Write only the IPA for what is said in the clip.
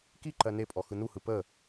kiǃɜ nepʼɔ xɯnuhɯ pə

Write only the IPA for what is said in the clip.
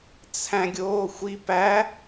t͡sʰæ̃ɡʲoːxʷi pæ

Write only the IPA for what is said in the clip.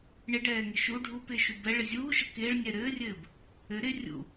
ɳɪɖɛːŋɪ ʃu ɖʱupɪːʃu bɛɭɪ zʲuːʃɘ kɪːɭnʲɛ ɾɘːrʲɘːb | ɘ ɾɪ rʲṵ

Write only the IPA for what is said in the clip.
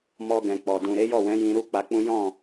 mɔ˧ɡɛ̃˨ k͡pɔ˨ dũ˨ɾe˨˦jɔ˦˨wɛ̃˨˦ jĩ˧ɾu˦k͡pa˧k͡pũ˦ jɔ̃˦˨

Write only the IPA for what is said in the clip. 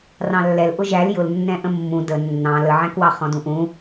rɑ̃lːɛl ʔʊʒæl jʊlnːɛ̃ ʔə̃mːũ də nːɑ̃ ləʕæ̃kwɑ χɔ̃dũʔũ

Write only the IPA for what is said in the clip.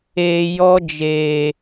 eː˨jɔ˦d͡ʒeː˨

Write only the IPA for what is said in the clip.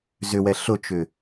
zʏwɛ ɬʊt͡ʃʏ

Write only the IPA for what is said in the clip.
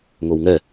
ŋowŋɛ

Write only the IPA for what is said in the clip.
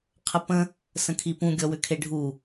qʰəpə̃ | sə̃kʰipũ ɡʲɔwʏkʰeɖʱu

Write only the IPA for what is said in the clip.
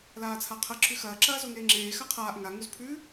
laːt͡sʰaqʰɐ ǁʉxɐː ǁɐːzoŋeːŋ͡ǁeː xaqʰaːʔ ŋa ŋuzpʰʉ

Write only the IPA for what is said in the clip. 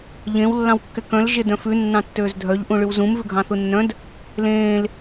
ʎẽw lːɑ̃wkːɛkœ̃l ʒedœ̃fʉ nːɑ̃tːøːzdʱœʎ ʔũɭywzũm vʉɡʱɑ̃θunːœ̃d | lẽːl

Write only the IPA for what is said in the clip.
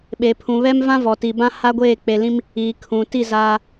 ɓe˨pʰũ˨βɛ˦mvã˦ vɔ˨ti˨bã˦ ha˦ɡʷeː˦˨ k͡pe˨lĩ˦m | iː˨ kʰũ˨ti˦˨ zaː˦

